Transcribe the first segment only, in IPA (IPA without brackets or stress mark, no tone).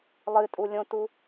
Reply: lˠ